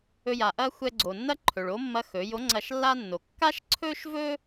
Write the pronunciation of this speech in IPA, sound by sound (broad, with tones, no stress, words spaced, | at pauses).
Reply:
ɵ˧ja˩ʔɐ˥ xʷɛ˧ɡ͡ǀo˩nːɐ˥ǃʰɵ˩ɭ o˧˥mːɐ˧˥ xɵ˩˧jo˧˥ ŋ͡ǀɐ˧ʃlːa˥nːo˩ kːa˥ʃǀʰɵ˥ʃvɵ˥